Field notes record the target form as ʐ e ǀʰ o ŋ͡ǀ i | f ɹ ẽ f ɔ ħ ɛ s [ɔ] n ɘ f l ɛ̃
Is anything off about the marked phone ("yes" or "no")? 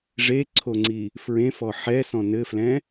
yes